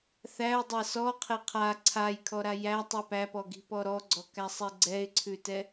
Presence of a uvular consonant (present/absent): present